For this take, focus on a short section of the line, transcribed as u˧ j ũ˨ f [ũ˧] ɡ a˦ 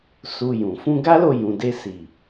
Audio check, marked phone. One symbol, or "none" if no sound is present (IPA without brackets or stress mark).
ũ˧